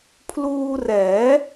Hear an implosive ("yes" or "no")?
no